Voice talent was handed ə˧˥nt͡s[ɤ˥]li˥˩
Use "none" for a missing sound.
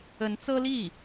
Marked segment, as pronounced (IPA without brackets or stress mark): ɤ˥